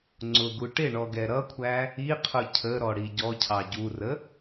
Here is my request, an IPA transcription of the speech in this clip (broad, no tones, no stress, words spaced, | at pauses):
ŋ͡ǀʊɡu ʈɪɳɔɡɛ ɾʌkʷʰæ | iqʰʊ cʰəɾɔɽi ɟɔcʰɑ ɟurə